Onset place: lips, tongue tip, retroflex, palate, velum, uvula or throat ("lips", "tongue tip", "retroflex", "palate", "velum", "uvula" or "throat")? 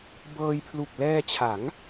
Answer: lips